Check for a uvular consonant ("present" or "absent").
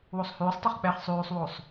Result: present